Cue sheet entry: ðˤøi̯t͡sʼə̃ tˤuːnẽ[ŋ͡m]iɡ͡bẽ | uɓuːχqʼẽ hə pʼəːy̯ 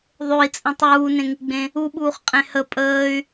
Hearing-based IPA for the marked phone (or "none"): ŋ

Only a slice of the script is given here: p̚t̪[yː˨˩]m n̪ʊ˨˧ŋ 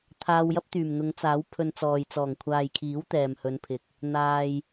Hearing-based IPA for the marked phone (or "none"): yː˨˩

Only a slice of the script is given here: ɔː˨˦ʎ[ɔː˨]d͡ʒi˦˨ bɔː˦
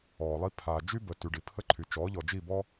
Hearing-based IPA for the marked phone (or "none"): ɔ˨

